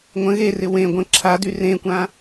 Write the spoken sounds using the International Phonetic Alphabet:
ŋʷə̃ ɣerɪ wẽ ɡʷə̃ ǁʰady rẽkʷã

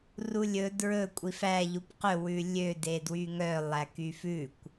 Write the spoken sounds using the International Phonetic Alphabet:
rulʲɵ dɹɵ kʷʼifæ ʎupqɵ wʉlʲø dedwyŋœ lˠækyfʉkʷ

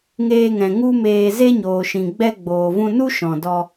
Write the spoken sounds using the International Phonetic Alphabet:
ŋeː˧ŋɛ̃˨ ŋu˦meː˧ ze˦ɲoː˨ʃĩ˨ ɡ͡bɛ˧ɡ͡boː˨vũ˧nu˦ ʃɔ̃˨dɔ˧

